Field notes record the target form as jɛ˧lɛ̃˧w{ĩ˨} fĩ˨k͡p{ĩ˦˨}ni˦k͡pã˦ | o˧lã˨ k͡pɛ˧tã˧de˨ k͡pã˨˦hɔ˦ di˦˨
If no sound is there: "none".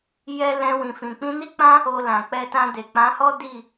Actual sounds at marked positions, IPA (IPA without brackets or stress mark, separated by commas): ĩ˨, ĩ˧